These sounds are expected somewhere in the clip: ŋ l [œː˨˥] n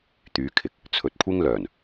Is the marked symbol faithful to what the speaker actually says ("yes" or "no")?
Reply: no